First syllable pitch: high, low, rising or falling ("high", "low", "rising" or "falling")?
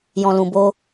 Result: low